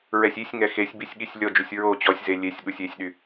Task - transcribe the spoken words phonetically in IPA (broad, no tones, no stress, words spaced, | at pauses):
ɹɛsʲisʲŋɛ xesʲbisʲ ɠisʲlʲɔd͡ʒusʲ ɹo t͡ɕɔsʲze lʲesʲɠusʲ esʲɗy